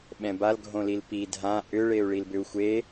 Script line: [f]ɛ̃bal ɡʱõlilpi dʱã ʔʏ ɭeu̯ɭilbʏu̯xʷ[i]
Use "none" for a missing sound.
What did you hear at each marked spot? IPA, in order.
ɓ, e

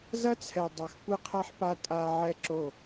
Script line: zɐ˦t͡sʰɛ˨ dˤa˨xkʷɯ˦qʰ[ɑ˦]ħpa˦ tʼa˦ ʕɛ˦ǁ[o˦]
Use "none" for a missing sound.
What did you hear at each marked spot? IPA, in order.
a˦, o˦˨

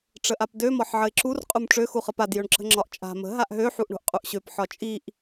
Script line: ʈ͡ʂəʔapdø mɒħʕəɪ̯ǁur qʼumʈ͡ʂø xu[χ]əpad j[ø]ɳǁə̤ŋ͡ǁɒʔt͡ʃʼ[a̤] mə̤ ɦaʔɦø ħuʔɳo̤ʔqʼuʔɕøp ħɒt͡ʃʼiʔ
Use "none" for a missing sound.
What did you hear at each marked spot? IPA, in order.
χ, ø, a̤

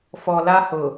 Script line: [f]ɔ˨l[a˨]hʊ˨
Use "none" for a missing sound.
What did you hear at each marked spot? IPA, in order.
f, a˦

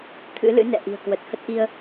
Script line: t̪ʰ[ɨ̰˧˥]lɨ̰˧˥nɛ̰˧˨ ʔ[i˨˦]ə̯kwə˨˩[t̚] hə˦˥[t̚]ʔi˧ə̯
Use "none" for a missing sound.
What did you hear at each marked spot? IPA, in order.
ɨ̰˧˥, i̤˨˩, t̚, t̚

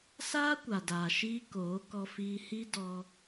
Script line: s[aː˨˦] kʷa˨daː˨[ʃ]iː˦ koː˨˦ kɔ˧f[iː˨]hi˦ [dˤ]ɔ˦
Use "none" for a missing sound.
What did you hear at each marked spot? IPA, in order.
aː˦, ʃ, iː˧, d

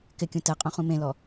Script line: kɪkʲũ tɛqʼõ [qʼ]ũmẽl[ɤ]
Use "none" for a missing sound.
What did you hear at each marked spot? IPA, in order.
χ, ɔ

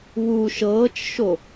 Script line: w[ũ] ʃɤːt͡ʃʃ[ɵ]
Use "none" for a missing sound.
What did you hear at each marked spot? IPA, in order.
u, o

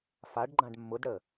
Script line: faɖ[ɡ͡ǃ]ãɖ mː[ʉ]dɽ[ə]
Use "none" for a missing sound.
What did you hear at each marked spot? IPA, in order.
ɡ͡ǃ, ʊ, ə

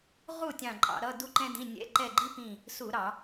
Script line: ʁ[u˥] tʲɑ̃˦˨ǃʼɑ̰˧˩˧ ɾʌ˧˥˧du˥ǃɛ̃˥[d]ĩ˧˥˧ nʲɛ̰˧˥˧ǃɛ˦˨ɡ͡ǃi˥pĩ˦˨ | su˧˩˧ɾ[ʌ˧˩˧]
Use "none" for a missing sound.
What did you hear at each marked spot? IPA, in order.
u˦˨, d, ɑ˧˩˧

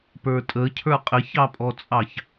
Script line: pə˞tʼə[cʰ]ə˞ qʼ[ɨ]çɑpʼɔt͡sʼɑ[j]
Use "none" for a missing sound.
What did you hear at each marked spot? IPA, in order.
cʰ, ɪ, ç

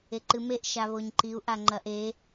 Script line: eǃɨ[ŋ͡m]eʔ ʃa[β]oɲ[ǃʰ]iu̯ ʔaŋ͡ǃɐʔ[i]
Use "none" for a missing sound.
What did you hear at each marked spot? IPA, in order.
m, β, ǃ, e

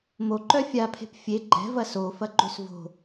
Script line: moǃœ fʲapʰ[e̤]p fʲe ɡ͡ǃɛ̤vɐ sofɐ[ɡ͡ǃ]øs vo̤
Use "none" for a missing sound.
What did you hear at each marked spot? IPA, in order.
e̤, ɡ͡ǃ

